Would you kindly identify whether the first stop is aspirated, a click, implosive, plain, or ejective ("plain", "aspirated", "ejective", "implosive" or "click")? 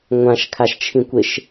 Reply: aspirated